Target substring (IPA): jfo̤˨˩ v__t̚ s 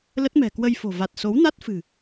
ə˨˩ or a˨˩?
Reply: a˨˩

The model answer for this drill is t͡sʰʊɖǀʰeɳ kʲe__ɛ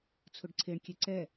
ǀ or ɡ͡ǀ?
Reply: ǀ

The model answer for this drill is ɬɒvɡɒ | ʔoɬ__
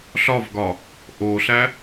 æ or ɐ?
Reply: æ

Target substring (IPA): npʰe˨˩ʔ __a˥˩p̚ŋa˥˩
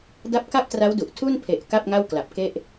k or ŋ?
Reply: k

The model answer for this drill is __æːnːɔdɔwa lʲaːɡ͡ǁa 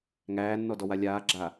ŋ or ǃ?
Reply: ŋ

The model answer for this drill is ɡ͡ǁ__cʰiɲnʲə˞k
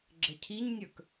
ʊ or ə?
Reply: ə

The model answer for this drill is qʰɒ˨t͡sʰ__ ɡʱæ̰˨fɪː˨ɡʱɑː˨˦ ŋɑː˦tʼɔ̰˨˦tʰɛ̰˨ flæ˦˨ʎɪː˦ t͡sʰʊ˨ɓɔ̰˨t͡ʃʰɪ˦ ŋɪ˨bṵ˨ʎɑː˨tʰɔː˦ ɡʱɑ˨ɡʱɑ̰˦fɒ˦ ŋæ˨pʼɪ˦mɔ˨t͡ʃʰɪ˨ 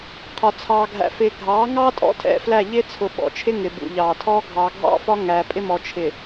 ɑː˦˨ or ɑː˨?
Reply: ɑː˨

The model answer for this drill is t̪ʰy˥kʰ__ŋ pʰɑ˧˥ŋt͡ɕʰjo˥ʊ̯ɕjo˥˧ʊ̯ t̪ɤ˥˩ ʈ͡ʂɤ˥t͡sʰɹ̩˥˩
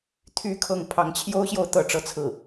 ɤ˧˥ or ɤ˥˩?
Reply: ɤ˥˩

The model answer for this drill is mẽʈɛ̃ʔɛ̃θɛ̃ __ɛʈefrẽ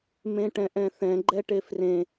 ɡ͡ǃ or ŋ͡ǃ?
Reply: ɡ͡ǃ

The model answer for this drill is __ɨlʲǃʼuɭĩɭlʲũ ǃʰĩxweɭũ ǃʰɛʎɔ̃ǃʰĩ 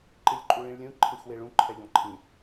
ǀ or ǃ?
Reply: ǃ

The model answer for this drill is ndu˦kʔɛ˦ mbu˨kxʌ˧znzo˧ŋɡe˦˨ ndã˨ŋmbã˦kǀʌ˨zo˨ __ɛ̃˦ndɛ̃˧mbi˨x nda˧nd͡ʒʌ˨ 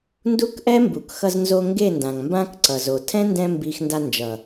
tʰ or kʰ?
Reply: tʰ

